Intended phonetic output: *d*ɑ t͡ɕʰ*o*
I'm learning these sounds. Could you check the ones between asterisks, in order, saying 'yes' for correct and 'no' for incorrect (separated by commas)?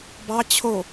no, yes